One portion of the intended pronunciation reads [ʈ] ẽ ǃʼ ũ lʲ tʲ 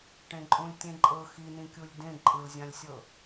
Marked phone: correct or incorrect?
correct